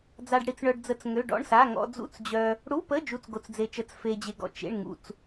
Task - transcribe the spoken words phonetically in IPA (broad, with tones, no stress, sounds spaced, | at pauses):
d͡z a˧ ɖ ɽ i˧ t͡s ɳ œ˧ ɖ d͡z ə˧ t͡s ŋ ø˧˥˧ ɖ ɔ̰˧˥˧ ɳ s a˧˥˧ ŋ ɔ̰˧ d͡z ṵ˧˥˧ t͡s d͡ʑ œ˧ | ɽ u˧˥˧ p ə˧˥˧ d͡ʒ u˧˥˧ t͡s ɡ o˧ t͡s d͡z e˧ t͡ʃ ə˧˥˧ t͡s f e˧ d͡ʑ e˧ ɡ ɔ̰˧ t͡ʃ ḛ˧˥˧ ɳ ŋ ṵ˧ t͡s